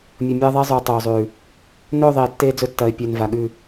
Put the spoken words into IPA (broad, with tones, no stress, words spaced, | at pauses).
mʲɵ˨mʲɐː˦ðˤe˦zˤʉː˨ tˤoː˨zˤʉː˨ | nɵː˦˨ðˤeː˨ tːeː˦d͡zɵ˦tːɐː˨ɪ̯ pʲɵː˨n va˨ɠʉ˦˨